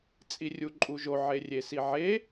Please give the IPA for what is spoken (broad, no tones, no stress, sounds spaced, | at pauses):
t͡sʼ i rʲ u ǃʼ u ʒ o ʕ e rʲ e s i ʕ e